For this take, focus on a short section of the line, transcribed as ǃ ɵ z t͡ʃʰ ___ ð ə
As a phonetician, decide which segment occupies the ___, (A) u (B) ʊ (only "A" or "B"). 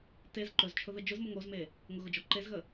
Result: B